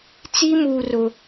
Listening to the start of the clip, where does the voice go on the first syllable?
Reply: high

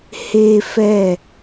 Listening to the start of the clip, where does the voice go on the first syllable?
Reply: high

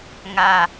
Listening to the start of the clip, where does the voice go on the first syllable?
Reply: low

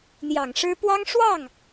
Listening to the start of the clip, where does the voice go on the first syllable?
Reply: low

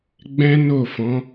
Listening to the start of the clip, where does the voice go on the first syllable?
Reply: high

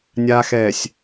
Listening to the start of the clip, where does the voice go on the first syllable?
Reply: low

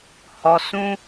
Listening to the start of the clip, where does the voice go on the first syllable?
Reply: low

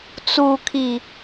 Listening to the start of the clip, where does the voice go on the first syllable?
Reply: low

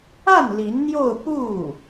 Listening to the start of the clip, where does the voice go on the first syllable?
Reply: falling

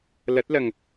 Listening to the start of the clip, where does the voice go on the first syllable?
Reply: rising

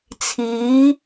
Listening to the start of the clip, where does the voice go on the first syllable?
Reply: rising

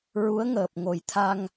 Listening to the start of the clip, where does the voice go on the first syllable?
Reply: rising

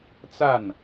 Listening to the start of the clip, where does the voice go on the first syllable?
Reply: falling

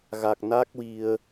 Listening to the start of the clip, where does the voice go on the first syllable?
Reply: low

